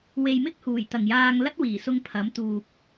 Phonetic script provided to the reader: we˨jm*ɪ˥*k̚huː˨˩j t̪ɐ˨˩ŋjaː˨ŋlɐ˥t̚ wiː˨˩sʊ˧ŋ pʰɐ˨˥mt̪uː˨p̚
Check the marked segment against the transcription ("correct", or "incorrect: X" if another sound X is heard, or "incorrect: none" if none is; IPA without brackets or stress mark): correct